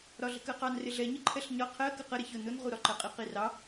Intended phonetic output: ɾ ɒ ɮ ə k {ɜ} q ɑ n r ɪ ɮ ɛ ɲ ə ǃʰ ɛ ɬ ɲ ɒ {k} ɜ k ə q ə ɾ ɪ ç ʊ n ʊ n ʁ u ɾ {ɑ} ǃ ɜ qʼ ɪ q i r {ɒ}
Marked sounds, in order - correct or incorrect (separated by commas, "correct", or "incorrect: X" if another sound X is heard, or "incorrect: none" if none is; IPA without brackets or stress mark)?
correct, incorrect: qʰ, incorrect: ɒ, incorrect: ɑ